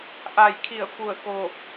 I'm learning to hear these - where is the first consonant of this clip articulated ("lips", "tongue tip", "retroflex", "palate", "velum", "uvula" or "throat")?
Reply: throat